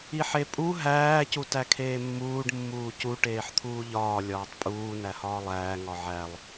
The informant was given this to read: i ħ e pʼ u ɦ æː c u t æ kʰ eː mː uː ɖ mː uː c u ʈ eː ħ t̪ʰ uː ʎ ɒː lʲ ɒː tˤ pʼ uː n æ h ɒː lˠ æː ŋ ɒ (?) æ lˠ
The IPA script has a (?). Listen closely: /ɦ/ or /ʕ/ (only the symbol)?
ʕ